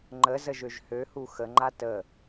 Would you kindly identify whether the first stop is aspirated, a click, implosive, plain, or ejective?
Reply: click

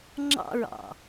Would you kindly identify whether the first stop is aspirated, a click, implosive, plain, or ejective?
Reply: click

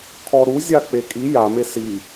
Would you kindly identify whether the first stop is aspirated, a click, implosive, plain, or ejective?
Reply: aspirated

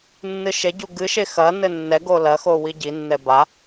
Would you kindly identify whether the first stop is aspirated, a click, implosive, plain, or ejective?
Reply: plain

